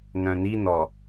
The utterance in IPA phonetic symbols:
n œ̃ n i n ɔ

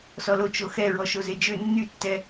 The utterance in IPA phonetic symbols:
s ɔ l o t͡ʃ o x ɛ ɹ ɔ ʃ o z e d͡ʒ ø nː y tː ɛ

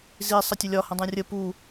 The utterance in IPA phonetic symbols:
z i sˤ ɐ tʲ ɵ lʲ ɒ h ə̃ dˤ ũ rʲ ə p u

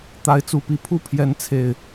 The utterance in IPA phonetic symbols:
t̪ a˨˦ ɪ̯ t͡s u˨˩ p i˨˦ pʰ u˥˨ pʰ j ɛ˨˦ n t͡sʰ e˨˩ ɪ̯

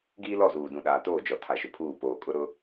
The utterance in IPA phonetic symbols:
ɡ iː˦ l ɔ˦˨ z uː˨ d ũ˨ ɗ aː˨ t oː˦˨ d͡ʒ ɔ˨ tʰ a˨ ʃ ʊ˨ pʰ uː˦˨ p oː˨ kʼ ʊ˦ ɾ ʊ˦

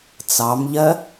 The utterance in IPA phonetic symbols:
t͡s ɑ m ʎ ɜ

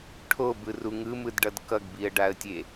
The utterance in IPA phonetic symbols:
ʈʰ o b ɯ r u ŋ ɯ m ɯ d ɖ ʌ d k ʌ ɡ b i ə̯ ɖ a ə̯ tʲ e

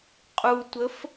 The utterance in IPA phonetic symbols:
qʼ u tʷ ə f

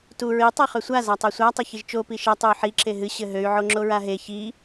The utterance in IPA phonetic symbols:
t u ɹ i tˤ ɛ χ ø sʷ a z a tˤ e sʷ a tˤ ɘ ç i ʒ t͡ʃ o p i ʃ ɛ tˤ u y̯ ħ i ǁ e ɦ ɨ ɕ ɘ ɦ ø y̯ ʕ o ŋ͡ǁ o ɹ a ɦ e ç i

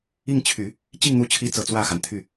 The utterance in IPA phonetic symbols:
i˥˩ ŋ t͡ɕʰ y˨˩˦ | t͡ɕ i˥˩ ŋ n̪ u˧˥ t͡ɕʰ i˧˥ t͡s ɤ˨˩ t͡s w ä˥˩ x a˩ n t̪ʰ y˥˩

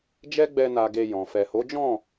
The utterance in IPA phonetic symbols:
d͡ʒ ɛ˦ ɡ͡b ɛ˧ n a˧ ɡ e˧ j ɔ̃˨ f ɛ˨ h o˨˦ d͡ʒ ɔ̃˦˨

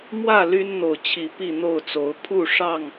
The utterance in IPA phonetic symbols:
m w ä˥˨ l y˦ n n̪ o˨ ʊ̯ t͡ɕʰ i˨˦ p i˥˨ n̪ o˥˨ ʊ̯ t͡s o˨˦ ʊ̯ pʰ u˥˨ ʂ ɑ˥˨ ŋ

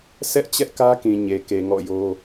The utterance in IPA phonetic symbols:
s ɛ˦ ʔ t͡ɕ ɛ˦ ʔ k ä˦ k ĩ˨ ɲ e˨ k e˨ ŋ ɔ̰˦˨ j o˦

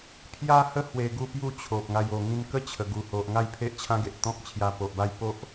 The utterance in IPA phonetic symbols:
pʰ j a˦ h ə˦ h w e˧ ɡ u˥˧ p j u˥˧ t͡ɕʰ o˨ p̚ ŋ a˧ j o˨˩ ŋ ĩ˧ n k ə˦ t͡ɕʰ ə˨˩ ɡ u˨˩ h o˨ ʔ ŋ a˥˧ j pʰ e˦ ʔ t͡ɕʰ ã˦ ɡ e˨ ʔ t̪ ɔ̃˦ k̚ t͡ɕʰ j a˧ p o˨ ʔ b a˥˧ j p o˦ ʔ

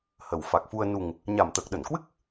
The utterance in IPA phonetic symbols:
h ə˨˩ w f a˨˩ k̚ f u˧ ə̯ n u˨˩ ŋ | ɲ a˨˩ m t̪ əː˨˩ k̚ ɗ ə˧˩ n k w ɨ˦˥ k̚

